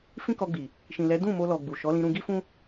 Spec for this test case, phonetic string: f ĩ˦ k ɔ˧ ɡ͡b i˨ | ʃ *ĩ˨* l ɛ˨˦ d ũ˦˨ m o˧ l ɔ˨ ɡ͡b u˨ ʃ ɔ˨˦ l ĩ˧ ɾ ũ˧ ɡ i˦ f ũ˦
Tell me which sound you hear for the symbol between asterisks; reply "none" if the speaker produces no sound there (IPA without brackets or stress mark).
ĩ˨